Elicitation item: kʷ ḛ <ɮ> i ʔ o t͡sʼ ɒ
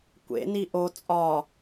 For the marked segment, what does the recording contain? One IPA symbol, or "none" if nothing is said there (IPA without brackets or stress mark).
n